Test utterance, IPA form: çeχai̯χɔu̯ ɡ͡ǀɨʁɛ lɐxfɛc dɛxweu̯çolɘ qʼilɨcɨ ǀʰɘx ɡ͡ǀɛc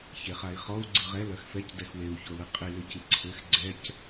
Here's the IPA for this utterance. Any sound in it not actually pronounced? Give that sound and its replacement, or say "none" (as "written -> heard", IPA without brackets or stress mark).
none